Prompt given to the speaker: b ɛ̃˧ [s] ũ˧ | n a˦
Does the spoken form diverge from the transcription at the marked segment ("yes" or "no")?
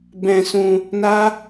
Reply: no